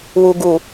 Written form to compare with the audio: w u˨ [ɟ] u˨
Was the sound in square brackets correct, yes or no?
no